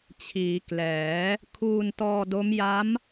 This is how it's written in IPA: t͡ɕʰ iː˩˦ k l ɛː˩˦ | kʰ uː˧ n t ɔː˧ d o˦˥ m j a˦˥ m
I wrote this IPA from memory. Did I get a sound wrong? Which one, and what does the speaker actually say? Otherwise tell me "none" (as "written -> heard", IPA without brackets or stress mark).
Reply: none